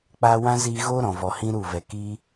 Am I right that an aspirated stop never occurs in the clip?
yes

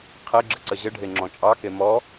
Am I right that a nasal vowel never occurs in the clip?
no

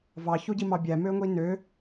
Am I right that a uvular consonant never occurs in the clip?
yes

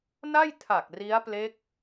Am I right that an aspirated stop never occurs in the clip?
no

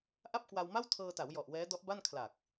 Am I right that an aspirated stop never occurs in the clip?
no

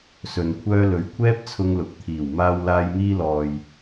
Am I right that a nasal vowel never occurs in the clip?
yes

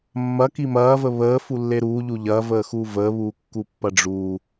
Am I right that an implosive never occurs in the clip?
yes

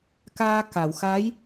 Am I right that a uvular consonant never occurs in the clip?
yes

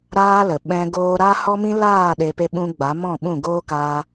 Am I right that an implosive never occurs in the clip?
no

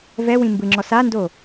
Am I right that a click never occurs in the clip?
no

